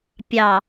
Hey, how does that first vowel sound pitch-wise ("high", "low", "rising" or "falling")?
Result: low